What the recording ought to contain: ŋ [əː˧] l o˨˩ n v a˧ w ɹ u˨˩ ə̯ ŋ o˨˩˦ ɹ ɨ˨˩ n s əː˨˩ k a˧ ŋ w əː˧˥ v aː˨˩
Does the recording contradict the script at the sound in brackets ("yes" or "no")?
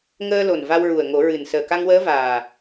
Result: no